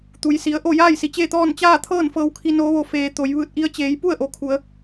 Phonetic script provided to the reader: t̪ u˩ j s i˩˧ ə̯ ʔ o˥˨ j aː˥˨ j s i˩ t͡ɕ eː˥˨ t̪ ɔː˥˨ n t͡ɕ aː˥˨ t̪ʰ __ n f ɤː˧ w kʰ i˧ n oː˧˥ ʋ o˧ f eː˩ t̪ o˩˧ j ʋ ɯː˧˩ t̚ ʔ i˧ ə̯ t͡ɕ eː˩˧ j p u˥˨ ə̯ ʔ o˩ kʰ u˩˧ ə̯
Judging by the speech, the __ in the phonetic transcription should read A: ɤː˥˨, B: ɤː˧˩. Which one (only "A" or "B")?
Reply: A